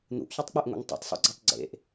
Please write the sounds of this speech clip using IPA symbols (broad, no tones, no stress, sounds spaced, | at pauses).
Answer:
n̪ ṵ ʔ ç ʉ tˤ k͡p ʉ ʔ ŋʷ ḛ ŋ tˤ ṵ tˤ sˤ ṵ ɡ͡ǀ e tˤ ɡ͡ǀ ḛ ʔ